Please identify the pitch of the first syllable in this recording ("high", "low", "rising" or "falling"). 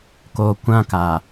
low